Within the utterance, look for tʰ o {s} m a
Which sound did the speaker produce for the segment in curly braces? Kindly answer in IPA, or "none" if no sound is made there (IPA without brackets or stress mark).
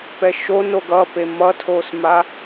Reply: s